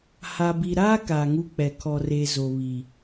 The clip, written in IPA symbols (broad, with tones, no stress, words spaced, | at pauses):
ha˨bi˨ɾaː˦ kaː˨ŋu˦k͡pɛ˨ kʰɔ˨re˨ zo˨βi˨